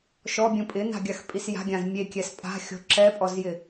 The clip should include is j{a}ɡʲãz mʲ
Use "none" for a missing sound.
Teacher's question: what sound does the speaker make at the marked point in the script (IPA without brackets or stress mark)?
a̤